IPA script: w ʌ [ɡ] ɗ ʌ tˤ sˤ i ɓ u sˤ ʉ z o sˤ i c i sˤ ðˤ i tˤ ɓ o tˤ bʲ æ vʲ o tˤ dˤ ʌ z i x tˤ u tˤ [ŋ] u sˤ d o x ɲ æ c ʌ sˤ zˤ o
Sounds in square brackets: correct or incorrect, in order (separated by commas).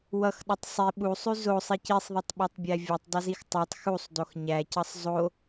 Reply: incorrect, incorrect